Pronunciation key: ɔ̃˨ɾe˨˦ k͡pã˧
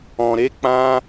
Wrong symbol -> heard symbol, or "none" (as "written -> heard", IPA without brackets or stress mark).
none